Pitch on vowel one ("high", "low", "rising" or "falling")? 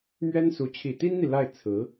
high